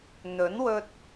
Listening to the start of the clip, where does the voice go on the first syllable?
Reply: rising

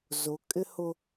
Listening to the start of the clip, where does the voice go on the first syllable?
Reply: rising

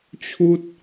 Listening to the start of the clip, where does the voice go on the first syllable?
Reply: high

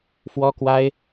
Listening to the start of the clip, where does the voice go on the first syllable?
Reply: high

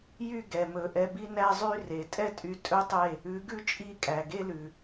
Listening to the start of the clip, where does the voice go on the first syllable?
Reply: falling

